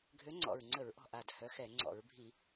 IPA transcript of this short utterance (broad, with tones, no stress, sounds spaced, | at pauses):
ɡʱ ø˨˦ ŋ͡ǀ ɔ̰˨˩ ɹ ŋ͡ǀ ə˧˩˧ ɹ ʔ ɔ̤˨˩ ʔ a˨˩ d h œ˨˦ x ɛ˧˩˧ ŋ͡ǀ ɔ̰˧˩˧ ɹ bʱ i˧˩˧